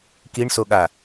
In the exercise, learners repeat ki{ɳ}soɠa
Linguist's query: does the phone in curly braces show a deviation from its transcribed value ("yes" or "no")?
no